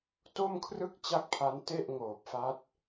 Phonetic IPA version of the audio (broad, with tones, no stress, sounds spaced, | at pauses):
t o˥˩ m kʰ r ɯ˥˩ k̚ t͡ɕ a˥˩ k̚ pʰ a˦˥ n t e˥˩ ʔ ŋ oː˨˩ p̚ f a˦˥ t̚